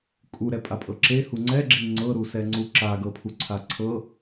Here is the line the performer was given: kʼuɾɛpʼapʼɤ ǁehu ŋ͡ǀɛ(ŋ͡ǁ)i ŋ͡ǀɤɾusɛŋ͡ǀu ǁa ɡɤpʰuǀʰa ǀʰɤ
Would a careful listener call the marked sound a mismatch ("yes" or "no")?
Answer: yes